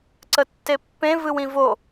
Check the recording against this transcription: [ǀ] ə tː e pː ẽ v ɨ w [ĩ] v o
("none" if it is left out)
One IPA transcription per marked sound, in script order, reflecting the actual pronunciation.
ǀ, ĩ

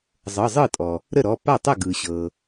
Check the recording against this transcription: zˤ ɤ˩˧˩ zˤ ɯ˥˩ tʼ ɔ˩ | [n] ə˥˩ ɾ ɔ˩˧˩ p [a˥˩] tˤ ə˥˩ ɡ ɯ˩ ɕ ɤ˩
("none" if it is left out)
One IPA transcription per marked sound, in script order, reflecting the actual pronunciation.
ɾ, a˥˩

